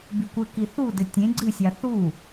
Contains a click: yes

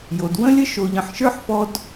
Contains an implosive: no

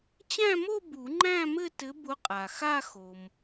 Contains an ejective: yes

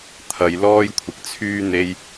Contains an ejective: no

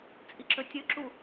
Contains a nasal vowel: no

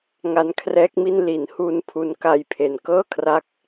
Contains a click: no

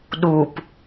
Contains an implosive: yes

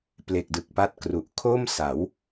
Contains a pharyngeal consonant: no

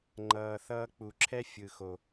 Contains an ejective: no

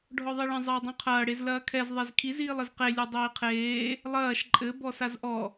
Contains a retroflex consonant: yes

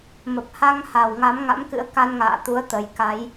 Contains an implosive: no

